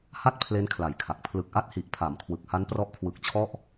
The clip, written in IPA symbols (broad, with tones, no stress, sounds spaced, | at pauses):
h a˥˩ t̚ pʰ l e˦˥ n kʰ l a˨˩ j kʰ a˨˩ k̚ pʰ l ɯ˨˩ k̚ ʔ a˦˥ t̚ h i˨˩ ʔ pʰ a˩˦ m kʰ w ɯ˨˩ k̚ h a˦˥ n p r ɔ˦˥ ʔ kʰ w ɯ˨˩ k̚ t͡ɕʰ ɔ˦˥ ʔ